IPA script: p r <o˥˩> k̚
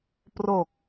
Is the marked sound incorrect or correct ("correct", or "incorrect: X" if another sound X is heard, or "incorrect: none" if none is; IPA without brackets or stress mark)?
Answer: incorrect: o˨˩